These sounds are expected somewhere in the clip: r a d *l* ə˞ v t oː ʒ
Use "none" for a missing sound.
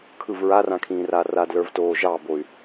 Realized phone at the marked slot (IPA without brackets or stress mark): l